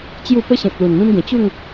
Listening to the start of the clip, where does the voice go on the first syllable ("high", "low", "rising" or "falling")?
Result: falling